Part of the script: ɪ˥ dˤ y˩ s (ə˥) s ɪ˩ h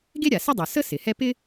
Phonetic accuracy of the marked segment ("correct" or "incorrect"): correct